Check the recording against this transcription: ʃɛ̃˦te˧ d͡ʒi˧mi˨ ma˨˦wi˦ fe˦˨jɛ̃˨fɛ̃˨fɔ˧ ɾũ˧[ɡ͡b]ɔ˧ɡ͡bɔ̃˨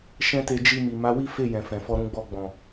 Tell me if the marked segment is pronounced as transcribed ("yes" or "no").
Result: yes